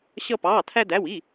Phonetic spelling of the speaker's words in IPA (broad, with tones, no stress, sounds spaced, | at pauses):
ɕ ʌ˥ p ɑː˧˥˧ tʰ æ˥ d æ˧˥˧ w i˧˥˧